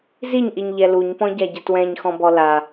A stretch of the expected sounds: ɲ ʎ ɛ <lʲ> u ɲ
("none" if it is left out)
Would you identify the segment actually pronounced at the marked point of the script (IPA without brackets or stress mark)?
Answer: l